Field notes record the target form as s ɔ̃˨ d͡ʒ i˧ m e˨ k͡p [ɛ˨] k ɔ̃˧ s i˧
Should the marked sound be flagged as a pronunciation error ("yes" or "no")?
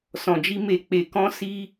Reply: yes